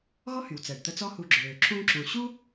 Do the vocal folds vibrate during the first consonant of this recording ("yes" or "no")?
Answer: yes